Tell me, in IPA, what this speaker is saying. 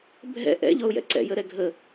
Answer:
bʱɛ̰ ʔɛ̰ʎɔʊ̯jɛ̰ ǀɛ̰jəɾɛ ɡʱə

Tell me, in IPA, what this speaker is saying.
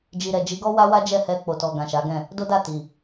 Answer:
d͡ʒi˨ɾɛ˨d͡ʒi˨˦ɡɔ˦ wa˦wa˦d͡ʒɛ˦˨ hɛ˧k͡po˨tɔ˨ ɡã˨ʃa˨˦ɡɛ̃˦˨ | do˦da˦˨ti˨

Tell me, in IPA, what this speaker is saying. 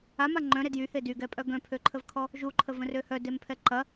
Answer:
ama ŋ͡ǃœ̃ɾe djyhe dyɡɛpʼœ ɡœ̃pʰøǃʰəvkʰɔ | ʒuǃʰəvə̃rø hœdempʰɛ ǃɐ

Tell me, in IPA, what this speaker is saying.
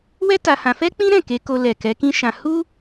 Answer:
wɛ˦ ta˧hã˧ fɛ˦k͡pĩ˦ɾɛ̃˦˨ ke˨˦ko˧lɛ˨ kɛ˨˦kĩ˦ʃã˧ hu˦

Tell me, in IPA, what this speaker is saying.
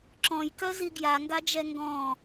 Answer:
ǁɔ̃jkœzi ɡjaŋɡad͡ʒɛ ŋɡɔ̃

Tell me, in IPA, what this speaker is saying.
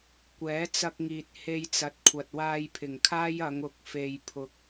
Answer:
kʷɛː˨˥t͡sɐ˧k̚ŋiː˨t̚ he˧jt͡sɐ˨t̚kʷʰɐ˨t̚ waː˧jpʰɪ˨˩ŋkʰaː˥j ɐ˨˧ŋʊ˨˥k̚ fe˨jpʰʊ˨k̚

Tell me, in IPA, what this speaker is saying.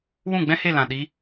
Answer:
wũ˦˨ɡ͡bɛ̃˦he˦˨lã˨ ɗi˧

